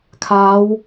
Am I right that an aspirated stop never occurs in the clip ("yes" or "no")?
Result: no